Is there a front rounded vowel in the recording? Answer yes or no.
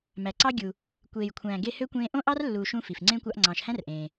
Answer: yes